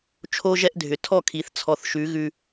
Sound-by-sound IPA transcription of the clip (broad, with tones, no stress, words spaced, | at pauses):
t͡ʃʰo˦ʒɛ˦ʔdʱʏ˨ tʰɔ˦˨kʰi˨˦θ t͡sʰɔ˨θʃʉ˨˦ ɣʉ˦